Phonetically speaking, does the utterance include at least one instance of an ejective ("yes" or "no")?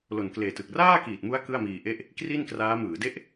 no